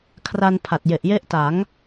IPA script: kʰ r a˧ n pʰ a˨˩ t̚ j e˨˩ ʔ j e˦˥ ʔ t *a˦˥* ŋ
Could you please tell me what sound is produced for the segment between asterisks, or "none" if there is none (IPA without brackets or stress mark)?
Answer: a˩˦